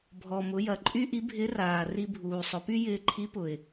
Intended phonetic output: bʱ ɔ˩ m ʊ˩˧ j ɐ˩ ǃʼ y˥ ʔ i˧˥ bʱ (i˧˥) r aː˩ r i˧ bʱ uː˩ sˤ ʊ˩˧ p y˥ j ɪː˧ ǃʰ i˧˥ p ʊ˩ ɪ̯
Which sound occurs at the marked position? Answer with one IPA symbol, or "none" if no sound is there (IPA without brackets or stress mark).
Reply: ɪ˧˥